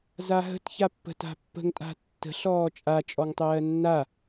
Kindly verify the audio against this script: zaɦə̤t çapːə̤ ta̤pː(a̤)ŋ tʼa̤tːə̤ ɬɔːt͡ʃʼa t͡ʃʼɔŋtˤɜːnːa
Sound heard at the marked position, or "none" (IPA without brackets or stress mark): ə̤